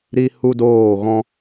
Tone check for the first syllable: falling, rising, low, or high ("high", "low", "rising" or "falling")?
high